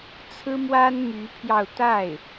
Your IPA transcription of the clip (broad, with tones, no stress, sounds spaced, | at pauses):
t͡sʰ ɹ̩˥ m w a˥ n m y˧˥ pʰ j ɑ˧ ʊ̯ t̪ a˥˩ ɪ̯